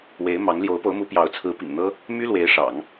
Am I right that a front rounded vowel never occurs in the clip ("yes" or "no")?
no